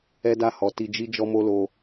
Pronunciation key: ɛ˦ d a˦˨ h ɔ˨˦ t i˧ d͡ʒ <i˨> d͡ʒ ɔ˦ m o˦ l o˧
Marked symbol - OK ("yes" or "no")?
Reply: no